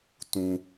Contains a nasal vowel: yes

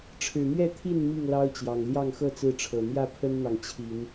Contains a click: no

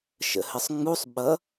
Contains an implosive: yes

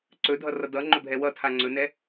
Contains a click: yes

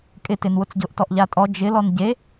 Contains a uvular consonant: no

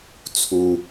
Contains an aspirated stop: yes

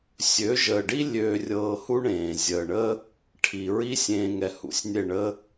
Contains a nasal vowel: yes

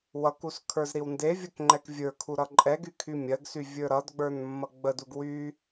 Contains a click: yes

